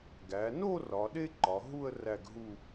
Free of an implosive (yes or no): no